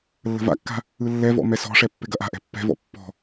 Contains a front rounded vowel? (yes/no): no